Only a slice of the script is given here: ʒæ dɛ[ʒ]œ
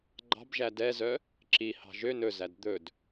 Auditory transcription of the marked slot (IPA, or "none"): z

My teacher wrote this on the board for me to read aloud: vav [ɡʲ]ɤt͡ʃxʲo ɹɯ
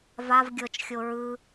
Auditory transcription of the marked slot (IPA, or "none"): ɡʲ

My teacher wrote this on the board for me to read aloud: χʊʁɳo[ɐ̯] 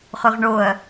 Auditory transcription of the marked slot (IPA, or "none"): ɐ̯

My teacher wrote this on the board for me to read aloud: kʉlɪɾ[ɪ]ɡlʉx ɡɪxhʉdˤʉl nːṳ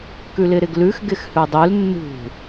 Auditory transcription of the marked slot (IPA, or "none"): ɪ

